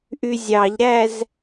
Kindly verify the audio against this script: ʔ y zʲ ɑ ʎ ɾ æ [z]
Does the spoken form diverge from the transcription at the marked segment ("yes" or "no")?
no